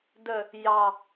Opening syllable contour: low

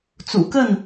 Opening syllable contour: low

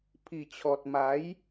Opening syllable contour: low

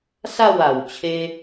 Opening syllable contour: falling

